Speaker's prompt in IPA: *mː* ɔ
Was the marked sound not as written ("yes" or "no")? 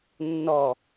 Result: yes